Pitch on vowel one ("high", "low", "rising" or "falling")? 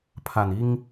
low